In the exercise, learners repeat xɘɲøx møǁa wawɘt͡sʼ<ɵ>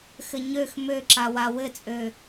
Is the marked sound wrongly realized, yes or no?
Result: yes